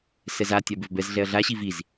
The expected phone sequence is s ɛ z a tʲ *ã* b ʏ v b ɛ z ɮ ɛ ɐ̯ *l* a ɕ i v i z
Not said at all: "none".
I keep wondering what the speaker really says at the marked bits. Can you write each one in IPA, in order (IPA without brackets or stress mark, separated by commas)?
a, ɮ